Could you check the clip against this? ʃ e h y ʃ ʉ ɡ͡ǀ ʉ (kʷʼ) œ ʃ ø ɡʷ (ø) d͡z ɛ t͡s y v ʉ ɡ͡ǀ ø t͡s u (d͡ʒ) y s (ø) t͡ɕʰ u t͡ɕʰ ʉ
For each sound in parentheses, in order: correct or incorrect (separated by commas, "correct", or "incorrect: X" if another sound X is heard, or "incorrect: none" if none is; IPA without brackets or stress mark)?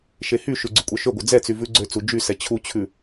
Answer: correct, incorrect: œ, correct, incorrect: ɛ